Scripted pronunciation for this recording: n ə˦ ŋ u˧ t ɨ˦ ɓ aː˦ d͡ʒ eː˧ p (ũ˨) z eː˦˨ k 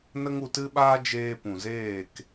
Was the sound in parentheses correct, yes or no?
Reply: yes